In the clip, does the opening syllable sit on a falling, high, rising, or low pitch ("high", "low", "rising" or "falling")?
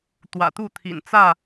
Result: low